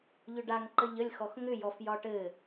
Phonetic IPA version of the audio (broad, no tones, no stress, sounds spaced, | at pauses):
ʎ ʏ ɖ a ŋ ǃ ə ʎ ə lʲ x ɔ x ŋ ʏ j ɔ f j ɒ ʈ ɘ